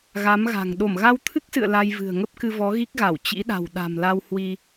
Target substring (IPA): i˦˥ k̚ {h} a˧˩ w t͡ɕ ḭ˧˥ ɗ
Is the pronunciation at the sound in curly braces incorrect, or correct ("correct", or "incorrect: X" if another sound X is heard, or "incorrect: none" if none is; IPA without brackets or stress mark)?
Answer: incorrect: ɣ